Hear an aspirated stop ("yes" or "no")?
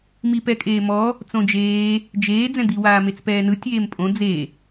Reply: no